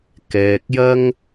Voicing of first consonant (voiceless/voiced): voiceless